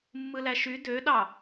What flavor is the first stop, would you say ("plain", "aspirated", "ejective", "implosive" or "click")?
plain